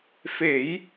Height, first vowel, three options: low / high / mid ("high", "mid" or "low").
mid